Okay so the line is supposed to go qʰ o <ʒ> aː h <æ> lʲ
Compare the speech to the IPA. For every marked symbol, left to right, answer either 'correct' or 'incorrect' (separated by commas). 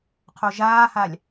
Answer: correct, incorrect